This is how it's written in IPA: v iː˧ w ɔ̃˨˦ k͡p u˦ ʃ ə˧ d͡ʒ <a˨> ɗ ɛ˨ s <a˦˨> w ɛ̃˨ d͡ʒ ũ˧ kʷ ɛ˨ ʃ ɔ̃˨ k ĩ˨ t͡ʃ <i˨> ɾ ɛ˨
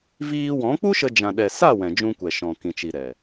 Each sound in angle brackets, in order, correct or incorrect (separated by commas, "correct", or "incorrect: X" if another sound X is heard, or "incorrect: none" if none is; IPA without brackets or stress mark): incorrect: ã˨, correct, correct